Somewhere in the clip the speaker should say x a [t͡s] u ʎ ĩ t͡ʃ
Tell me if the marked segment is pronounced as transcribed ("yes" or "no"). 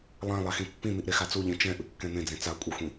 yes